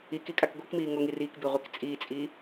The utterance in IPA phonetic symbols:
i k i kʼ a k ɡʷ i k m iː ŋ o ŋ i r iː k b i ʁʷ i k t͡sʼ iː t͡sʼ iː

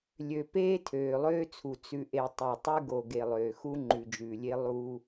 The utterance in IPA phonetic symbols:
lʲ ø˨ p eː˦ tʰ øː˨ lˠ øː˦ t͡sʰ u˨ t͡s ʉ˨ ʔ e˨ tˤ ø˨ tˤ ʉ˦ ɡ o˨ ɡ e˨ lˠ øː˨ x u˦ ŋ͡ǃ ʉ˨ d͡ʒ ʉː˨ lʲ e˦ lˠ uː˦

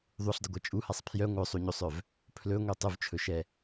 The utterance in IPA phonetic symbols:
ðˤ u ɬ dˤ ə ɡʷ ɛ t͡ʃʼ u h a sˤ pʰ j œ ŋʷ œ sˤ u ɲ o sˤ œ v | pʰ l ɵ ŋʷ ɛ tˤ ʊ v t͡ʃʰ ɵ ʃ ɛ

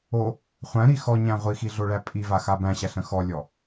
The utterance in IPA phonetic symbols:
o | χʷ æ̃ ɾ i x ɔ ɲ æ̃ ʁʷ i x i ɮ o ɭ æ pʼ i v a x a b æ̃ ɕ æ ɬ ə̃ x ɔ lʲ ɔ

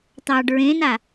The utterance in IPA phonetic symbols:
t̪ ɑ ɖ ɹ ẽ n a

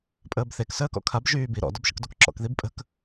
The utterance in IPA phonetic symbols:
pʼ əː b θ e k s əː k ɔ̰ kʰ a b ʒ yː b i ɾ ɔ̰ d ɔ b ʃ ə̰ k d o k ǁ ɔ̰ k ð i b pʼ ə̤ k

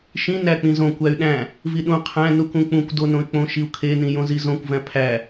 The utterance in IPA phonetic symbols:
ʃ ĩ n æ k͡p ĩ z õ kʷ æ y̯ ɗ æ̃ | v i ɗ ũ qʰ æ̃ n u k ũ k͡p ũ kʷ d o n õ y̯ k͡p õ ʃ i u̯ kʰ e n ĩ j õ z i z õ kʷ v æ̃ pʰ æ

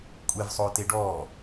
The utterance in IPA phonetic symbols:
kʷʼ e v sˤ oː t e ɖ ɔː

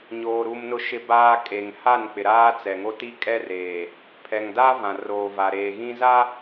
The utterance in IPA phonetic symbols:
ɲ oː˨ ɾ u˨ m n ʊ˨ ʃ ɪ˨ b aː˨ kʼ e˨ ŋ h a˦˨ n k͡p ɪ˨ ɾ aː˦ t͡s ɛ˨ ŋ o˦ t i˦ kʼ ɛ˦ r eː˨ | pʰ ɛ˨ ŋ d a˦ v ã˨ r oː˨ v a˨ ɾ eː˨ ɣ ĩ˦ z a˦

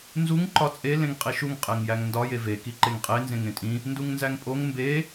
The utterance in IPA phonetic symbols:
n z u ŋ ǃ ɒ t͡sʼ e l ẽ ŋ qʼ i ʃ u ŋ qʼ e ŋ j æ ŋ n d ɒ j e v e k i ǃ e ŋ qʼ e n z ẽ ŋ ẽ tʼ ĩ | n d u ŋ n z æ ŋ pʼ o ŋ m b e

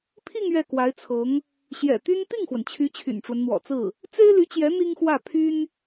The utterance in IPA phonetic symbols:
pʰ i˥˧ ŋ ɥ ɛ˥˩ k w a˧˥ ɪ̯ t͡sʰ ɤ˧˥ ŋ | ɕ j ɛ̰˨˩ t̪ y˥ n t̪ i˥˩ ŋ x w ə˩ n t͡ɕʰ y˧˥ t͡ɕʰ y̰˨˩ n ʈ͡ʂ w ə˦ n n̪ w ɔ̰˨˩ t͡s ɹ̩˥˩ | t͡s e˥ ɪ̯ l y˧˥ t͡ɕ j ɛ˧˥ n̪ i˥ ŋ x w ä˥˩ pʰ y˥ n

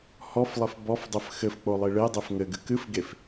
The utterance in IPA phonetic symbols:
h ɔ f lˠ ɘ f b ɔ f dˤ ɘ f x ɘ f k͡p o lˠ i ɭ e dˤ e f ŋ ɘ ɡ ɨ k ɨ f ɡ e f

